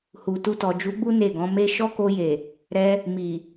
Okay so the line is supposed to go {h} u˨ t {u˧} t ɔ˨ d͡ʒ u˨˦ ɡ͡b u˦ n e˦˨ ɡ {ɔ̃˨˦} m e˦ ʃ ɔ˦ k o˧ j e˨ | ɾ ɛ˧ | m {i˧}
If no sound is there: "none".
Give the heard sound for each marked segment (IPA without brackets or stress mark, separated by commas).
h, u˧, ɔ̃˨˦, i˨